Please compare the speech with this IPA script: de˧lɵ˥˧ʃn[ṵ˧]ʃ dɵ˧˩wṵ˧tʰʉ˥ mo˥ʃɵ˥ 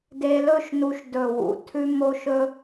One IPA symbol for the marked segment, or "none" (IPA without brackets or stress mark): u˧